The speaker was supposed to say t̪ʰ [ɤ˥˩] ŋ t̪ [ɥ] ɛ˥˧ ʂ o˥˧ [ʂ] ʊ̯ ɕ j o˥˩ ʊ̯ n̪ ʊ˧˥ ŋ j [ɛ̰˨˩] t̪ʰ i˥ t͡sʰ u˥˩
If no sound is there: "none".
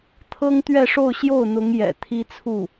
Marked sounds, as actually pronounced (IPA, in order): ɤ˥, ɥ, none, ɛ̰˨˩

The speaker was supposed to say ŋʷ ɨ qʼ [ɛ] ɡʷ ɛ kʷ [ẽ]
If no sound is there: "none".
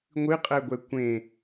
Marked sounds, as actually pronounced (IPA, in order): ɛ, ẽ

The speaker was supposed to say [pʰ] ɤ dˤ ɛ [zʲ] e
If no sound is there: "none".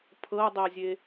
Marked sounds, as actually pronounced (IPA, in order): pʰ, zʲ

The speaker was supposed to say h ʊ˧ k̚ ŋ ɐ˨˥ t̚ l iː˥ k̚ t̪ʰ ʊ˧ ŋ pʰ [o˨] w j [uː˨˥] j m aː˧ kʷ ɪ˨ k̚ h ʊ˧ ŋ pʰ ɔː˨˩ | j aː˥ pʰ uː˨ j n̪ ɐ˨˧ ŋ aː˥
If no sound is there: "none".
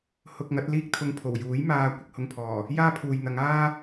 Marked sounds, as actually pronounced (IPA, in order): o˨˩, uː˨˥

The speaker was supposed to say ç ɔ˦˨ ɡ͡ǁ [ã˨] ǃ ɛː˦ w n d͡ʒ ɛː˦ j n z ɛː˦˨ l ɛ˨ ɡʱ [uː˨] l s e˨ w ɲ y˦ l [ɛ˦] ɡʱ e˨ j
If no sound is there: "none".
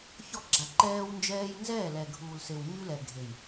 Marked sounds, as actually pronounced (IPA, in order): a˨, uː˨, ɛ˨

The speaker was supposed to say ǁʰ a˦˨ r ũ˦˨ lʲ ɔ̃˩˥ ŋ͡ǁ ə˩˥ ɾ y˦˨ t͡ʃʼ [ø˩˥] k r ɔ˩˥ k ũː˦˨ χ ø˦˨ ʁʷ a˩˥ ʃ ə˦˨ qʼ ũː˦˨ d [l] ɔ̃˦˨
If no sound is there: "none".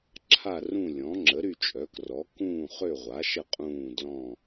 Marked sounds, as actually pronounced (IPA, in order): œ˩˥, l

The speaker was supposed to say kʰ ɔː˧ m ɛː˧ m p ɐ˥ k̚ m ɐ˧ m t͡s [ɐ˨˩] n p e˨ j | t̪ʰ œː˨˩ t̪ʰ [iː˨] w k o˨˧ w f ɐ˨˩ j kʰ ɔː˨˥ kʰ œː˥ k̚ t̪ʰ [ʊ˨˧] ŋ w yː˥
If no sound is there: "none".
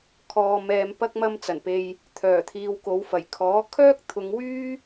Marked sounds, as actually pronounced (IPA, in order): ɐ˨˩, iː˨, ʊ˨˧

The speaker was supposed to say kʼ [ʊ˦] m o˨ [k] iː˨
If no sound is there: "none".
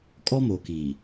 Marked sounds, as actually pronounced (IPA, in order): ɔ˦, k

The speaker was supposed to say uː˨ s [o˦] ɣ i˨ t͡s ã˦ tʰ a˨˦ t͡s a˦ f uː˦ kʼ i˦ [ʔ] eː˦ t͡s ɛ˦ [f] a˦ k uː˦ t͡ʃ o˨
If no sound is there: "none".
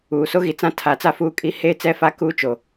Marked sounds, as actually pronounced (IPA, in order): o˦, h, f

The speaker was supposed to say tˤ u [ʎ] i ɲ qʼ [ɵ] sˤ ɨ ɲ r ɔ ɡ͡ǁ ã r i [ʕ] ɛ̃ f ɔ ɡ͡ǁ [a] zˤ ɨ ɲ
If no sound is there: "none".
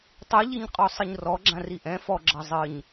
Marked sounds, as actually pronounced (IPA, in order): ʎ, ɔ, ʔ, ɐ

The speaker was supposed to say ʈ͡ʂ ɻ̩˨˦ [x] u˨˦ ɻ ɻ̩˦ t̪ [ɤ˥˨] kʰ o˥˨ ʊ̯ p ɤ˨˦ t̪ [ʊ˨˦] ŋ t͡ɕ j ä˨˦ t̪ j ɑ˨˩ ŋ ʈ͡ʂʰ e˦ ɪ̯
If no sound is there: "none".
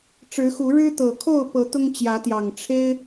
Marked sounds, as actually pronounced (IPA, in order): x, ɤ˨˩, ʊ˦

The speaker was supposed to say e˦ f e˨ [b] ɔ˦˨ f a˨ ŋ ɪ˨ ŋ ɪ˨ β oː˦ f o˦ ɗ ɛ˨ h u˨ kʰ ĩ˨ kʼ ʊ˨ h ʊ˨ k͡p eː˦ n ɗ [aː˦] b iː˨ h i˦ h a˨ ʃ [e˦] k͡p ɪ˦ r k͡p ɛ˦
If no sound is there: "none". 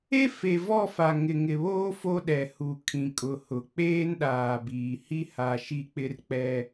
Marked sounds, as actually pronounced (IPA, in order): v, aː˨, i˦

